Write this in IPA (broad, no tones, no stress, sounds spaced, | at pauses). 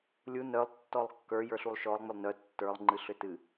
lʲ u n œ lˠ tː ɔ lˠ kː ə˞ j ə˞ ɬ u lˠ ʃ ɔ lˠ ŋ͡m ʏ lˠ n œ tː ə˞ lˠ ŋ͡ǃ ɨ ɬ ʏ t ɨ